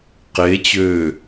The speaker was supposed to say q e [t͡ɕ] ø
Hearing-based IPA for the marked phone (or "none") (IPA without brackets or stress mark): t͡ɕ